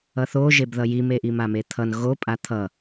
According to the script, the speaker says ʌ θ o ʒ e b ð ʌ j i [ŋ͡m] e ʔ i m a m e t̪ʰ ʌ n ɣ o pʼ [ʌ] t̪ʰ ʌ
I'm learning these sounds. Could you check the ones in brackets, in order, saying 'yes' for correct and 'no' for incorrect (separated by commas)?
no, no